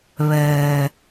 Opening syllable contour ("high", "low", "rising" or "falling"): low